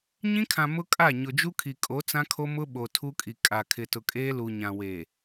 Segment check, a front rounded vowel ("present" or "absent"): absent